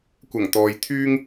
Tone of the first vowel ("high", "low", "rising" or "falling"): low